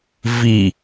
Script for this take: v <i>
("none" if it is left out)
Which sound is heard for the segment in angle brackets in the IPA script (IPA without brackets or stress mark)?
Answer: i